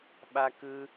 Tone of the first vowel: high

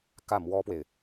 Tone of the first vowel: falling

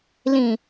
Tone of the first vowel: low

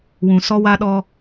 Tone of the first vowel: low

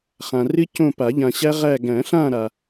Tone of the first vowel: low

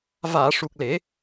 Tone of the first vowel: low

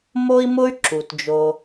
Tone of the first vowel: high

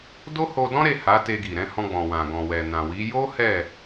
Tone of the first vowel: high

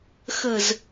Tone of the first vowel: low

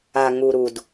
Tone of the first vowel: low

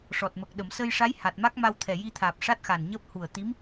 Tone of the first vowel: low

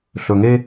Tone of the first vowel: low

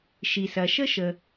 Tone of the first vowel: low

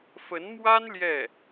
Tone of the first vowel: rising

